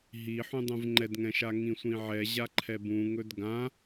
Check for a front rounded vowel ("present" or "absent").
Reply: absent